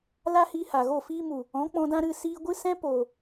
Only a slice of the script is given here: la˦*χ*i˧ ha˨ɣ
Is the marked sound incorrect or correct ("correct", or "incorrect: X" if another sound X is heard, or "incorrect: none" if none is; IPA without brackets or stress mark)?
incorrect: h